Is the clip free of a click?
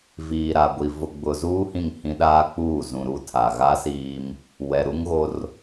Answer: yes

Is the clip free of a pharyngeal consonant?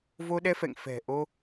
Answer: yes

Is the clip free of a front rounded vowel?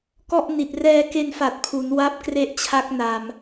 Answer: yes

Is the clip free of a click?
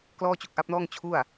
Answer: yes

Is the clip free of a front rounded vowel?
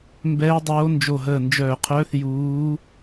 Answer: no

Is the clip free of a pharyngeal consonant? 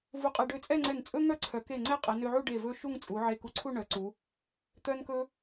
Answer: no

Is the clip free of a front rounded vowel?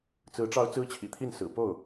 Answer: yes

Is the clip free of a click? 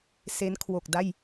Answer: yes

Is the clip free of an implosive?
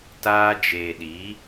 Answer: no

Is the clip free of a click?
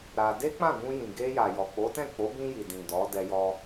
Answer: yes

